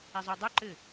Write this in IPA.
e zˤ o dˤ u ǃ ɘ

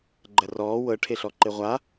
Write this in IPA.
ɡ͡ǃ ɜ r ɔː w ɤ ʈʰ e ɬ ɔ ǃ e ʁʷ a

